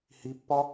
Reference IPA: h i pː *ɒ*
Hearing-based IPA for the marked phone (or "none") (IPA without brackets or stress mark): ɒ